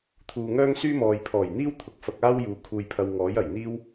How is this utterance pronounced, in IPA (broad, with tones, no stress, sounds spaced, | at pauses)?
t̪ʰ uː˨ ŋ œː˥ ŋ s yː˥ m ɔː˨ j pʰ ɔː˨˩ j n̪ iː˥ w t̪ʰ ʊ˨ k̚ f ɐ˧ k̚ aː˥ w j uː˨ kʰ uː˧ j pʰ ɐ˧ w ŋ ɔː˨˥ j ɐ˨˩ j n̪ iː˥ w